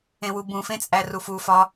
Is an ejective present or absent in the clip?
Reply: present